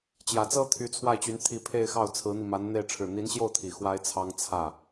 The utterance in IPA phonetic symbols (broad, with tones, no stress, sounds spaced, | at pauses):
t͡ɕ j ä˨˩ t͡s ɤ˥ t̪ʰ y˧˥ t͡sʰ w a˥˩ ɪ̯ t͡ɕ y˧˥ n t̪ʰ i˧˥ pʰ e˥˧ ɪ̯ x ɑ˥˩ ʊ̯ t͡sʰ ɹ̩˧˥ n̪ i˧ m a˧˥ n n̪ e˥˧ ɪ̯ ʈ͡ʂʰ ɻ̩˥˩ n̪ i˧˥ n ɕ j o˥˩ ʊ̯ t̪ʰ i˨˩ x w a˥ ɪ̯ t͡sʰ ɑ˥ ŋ t͡sʰ ä˥˩